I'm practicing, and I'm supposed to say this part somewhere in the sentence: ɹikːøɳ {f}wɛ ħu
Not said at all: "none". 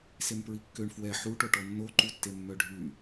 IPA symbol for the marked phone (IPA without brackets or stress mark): f